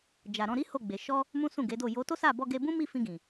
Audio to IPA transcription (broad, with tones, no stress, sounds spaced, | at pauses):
d͡ʒ a˨ ɾ ɔ̃˧ ɾ i˦ h o˦˨ ɡ͡b e˨ ʃ ɔ˧ | m ũ˦ s ũ˦˨ ɡ e˨˦ d o˦˨ j o˨˦ t o˦ s a˦˨ b ɔ˧ ɡ e˧ b ũ˦ m i˦˨ f ĩ˧ ɡ ĩ˨